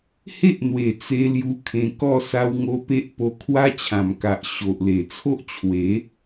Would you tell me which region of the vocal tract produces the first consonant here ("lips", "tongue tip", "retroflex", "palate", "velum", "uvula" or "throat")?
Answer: throat